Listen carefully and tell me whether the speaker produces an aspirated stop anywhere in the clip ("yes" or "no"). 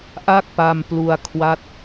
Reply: yes